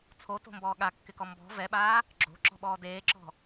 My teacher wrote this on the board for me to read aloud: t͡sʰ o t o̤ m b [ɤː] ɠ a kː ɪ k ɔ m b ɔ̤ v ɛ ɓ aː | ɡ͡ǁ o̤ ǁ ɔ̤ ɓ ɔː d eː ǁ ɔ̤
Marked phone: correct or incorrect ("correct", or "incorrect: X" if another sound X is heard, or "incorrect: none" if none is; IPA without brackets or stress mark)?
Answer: incorrect: ɔː